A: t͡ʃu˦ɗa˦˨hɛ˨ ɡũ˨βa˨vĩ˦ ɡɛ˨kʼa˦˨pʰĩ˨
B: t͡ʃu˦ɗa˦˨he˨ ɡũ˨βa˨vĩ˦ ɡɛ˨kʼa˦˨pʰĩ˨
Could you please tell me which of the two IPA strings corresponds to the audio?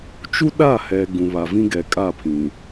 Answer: A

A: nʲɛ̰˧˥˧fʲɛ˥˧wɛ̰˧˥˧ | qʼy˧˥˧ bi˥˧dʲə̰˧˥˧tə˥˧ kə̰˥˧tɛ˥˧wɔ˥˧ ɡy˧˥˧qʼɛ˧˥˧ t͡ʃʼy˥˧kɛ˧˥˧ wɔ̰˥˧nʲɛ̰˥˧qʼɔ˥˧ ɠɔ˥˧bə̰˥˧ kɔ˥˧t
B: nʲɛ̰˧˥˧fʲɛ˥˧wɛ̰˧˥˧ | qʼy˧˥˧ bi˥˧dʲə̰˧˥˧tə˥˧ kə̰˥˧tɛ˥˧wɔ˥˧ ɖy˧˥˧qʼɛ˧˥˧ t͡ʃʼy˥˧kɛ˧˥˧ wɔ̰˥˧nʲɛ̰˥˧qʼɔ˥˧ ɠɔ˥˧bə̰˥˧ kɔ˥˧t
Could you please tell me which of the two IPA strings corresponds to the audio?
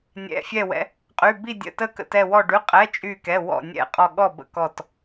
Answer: B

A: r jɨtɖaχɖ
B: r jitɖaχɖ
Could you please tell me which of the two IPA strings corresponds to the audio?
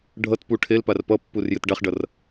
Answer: A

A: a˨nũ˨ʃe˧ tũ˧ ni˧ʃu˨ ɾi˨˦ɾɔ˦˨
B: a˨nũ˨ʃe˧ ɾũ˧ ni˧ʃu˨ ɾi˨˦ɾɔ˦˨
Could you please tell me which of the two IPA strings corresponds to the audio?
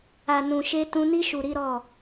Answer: A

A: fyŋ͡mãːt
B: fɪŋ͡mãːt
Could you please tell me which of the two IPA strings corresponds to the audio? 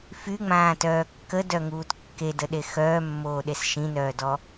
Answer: A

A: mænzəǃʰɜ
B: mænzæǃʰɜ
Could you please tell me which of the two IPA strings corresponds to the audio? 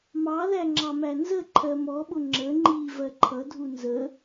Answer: A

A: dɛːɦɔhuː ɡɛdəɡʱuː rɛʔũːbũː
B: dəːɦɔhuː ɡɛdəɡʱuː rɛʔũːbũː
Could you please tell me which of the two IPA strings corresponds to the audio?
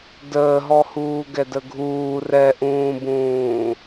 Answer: B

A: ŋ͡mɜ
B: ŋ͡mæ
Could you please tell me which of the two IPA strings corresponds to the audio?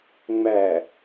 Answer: B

